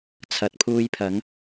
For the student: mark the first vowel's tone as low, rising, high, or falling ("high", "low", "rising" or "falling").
low